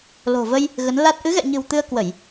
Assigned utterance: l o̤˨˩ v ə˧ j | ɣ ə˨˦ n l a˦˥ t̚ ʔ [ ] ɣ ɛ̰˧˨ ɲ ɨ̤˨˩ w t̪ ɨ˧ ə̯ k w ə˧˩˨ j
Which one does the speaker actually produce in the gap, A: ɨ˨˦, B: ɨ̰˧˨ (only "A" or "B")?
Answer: A